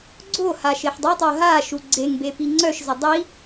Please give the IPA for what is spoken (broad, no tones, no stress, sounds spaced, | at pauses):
ɡ͡ǀ o h a ʃ e ħ dˤ ɛ tˤ o ɦ a ʃ u ɡ͡ǀ e ŋ b e p i ŋ͡ǀ œ ʃ z ɛ dˤ i